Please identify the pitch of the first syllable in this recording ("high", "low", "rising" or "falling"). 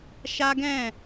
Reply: high